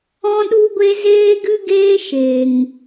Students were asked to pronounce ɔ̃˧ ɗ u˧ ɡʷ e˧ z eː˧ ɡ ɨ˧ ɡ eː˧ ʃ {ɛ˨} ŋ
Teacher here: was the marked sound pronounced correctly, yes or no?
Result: no